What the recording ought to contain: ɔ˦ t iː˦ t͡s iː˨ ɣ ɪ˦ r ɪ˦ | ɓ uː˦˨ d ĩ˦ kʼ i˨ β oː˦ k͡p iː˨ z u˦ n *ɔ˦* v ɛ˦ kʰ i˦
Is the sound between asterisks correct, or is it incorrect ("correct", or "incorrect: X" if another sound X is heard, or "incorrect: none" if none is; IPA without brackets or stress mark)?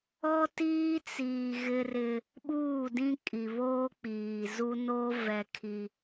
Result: incorrect: o˦